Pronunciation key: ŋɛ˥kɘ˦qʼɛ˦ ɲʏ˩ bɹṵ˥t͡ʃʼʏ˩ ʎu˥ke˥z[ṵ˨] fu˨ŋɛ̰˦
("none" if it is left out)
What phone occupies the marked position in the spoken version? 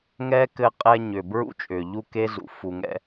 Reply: ṵ˨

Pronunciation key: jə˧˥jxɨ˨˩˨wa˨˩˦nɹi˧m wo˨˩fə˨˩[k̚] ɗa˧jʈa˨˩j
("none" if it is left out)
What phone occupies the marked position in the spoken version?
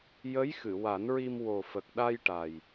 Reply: k̚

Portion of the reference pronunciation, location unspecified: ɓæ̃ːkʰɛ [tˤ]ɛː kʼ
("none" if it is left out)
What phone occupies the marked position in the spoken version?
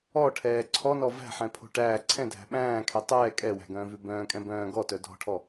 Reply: tˤ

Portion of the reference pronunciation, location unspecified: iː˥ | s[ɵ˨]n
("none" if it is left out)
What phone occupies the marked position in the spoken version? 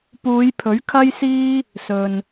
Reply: ɵ˨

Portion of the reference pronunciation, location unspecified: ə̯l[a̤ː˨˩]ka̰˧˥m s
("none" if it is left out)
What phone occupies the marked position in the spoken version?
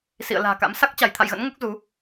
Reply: a̤ː˨˩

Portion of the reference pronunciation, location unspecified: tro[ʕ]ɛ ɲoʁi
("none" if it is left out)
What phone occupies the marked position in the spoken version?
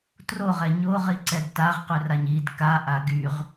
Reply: ʁ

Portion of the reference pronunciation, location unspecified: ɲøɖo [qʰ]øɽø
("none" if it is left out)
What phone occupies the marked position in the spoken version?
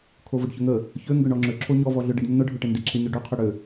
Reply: qʰ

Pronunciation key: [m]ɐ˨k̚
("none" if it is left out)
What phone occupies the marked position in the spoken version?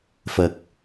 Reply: f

